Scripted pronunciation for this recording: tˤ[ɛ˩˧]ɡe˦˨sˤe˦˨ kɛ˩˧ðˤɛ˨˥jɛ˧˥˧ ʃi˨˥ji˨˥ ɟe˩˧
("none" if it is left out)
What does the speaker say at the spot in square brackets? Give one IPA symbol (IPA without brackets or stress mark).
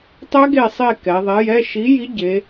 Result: ɛ˦˥